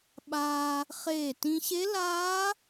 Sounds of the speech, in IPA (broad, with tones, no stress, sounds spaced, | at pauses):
ɓ aː˧ | χ eː˧˩ t ĩ˧ ɕ e˦˥ l aː˦˥